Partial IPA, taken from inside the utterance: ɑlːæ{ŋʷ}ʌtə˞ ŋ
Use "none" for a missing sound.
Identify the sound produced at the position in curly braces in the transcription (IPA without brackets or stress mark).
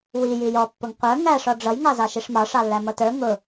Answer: m